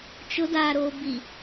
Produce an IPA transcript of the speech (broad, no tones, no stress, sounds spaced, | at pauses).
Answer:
t͡ʃ ʊ d aː ɾ oː b i